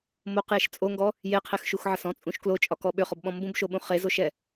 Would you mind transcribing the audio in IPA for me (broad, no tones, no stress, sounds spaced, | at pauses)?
m o q j e ʃ t͡sʼ o ŋ ɡ ɔ | j e qʰ e x ʃ u x ʕ ə s ɔ̃ t͡sʼ ũ ʃ k l o t͡ʃʼ ɒ k ɔ ɓ ʏ χ ɔ b ɓ ɔ̃ m b ũ b ʃ o ɓ ũ χ e z o ʃ ɛ